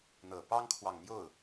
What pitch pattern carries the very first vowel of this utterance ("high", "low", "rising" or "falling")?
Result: low